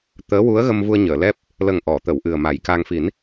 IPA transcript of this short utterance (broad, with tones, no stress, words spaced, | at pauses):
t̪əː˧˥ wu˧˥ə̯ɣə˧m vu˧ə̯ɲəː˨˩˨lɛ˦˥p̚ | lə˨˩ŋ ʔɔ˨˩˨t̪ə˨˩˨w ʔɨ˨˩ə̯ma˨˩˦jka˧ŋ fi˨˩˦n